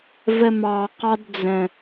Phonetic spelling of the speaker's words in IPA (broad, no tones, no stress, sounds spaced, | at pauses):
v ə m ɑ q ɑ d d͡z ə̃